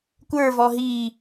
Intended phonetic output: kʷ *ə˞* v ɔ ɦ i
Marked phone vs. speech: correct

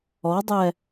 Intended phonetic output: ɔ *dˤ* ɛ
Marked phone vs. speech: correct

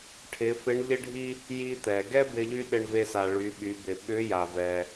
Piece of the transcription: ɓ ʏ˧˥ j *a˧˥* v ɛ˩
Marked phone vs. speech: incorrect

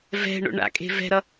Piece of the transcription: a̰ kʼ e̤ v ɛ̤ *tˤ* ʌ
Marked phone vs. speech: incorrect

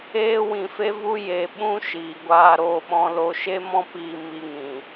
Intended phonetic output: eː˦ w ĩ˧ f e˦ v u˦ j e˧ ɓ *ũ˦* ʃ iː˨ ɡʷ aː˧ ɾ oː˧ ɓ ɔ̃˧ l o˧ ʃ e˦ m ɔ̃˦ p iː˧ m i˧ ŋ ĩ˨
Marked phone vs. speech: correct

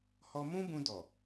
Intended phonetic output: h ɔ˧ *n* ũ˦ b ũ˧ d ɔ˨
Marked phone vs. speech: incorrect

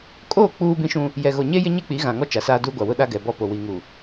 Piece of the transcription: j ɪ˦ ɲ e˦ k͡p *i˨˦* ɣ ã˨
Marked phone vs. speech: correct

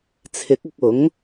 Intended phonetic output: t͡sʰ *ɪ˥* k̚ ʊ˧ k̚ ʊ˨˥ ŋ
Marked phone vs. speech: incorrect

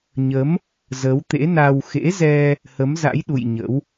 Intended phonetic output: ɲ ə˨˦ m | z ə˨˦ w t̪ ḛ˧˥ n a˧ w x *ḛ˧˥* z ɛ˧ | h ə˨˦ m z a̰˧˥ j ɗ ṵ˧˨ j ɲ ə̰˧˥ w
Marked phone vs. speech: correct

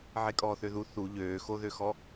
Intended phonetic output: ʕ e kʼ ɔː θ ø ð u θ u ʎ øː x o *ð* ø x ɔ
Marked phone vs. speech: correct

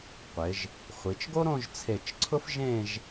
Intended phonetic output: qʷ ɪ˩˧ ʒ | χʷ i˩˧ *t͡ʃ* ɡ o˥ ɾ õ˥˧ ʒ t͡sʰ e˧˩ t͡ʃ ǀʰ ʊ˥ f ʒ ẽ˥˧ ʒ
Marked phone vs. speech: correct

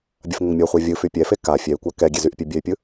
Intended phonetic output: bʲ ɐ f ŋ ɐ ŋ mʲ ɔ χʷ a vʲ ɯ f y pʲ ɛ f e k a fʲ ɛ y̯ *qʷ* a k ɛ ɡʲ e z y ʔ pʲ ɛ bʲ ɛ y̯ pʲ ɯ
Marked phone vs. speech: incorrect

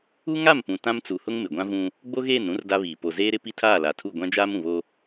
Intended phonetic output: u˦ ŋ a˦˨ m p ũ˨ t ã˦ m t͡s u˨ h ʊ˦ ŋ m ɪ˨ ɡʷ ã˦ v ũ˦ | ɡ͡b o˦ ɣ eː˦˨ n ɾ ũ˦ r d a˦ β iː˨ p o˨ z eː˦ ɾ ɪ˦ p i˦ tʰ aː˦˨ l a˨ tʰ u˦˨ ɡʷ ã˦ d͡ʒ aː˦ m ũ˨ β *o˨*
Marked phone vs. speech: incorrect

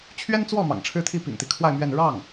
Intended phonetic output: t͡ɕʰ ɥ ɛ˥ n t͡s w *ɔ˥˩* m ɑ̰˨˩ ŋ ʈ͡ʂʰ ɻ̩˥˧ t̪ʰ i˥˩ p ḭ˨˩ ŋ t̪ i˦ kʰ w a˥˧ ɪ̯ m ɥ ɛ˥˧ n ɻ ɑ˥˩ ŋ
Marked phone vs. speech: correct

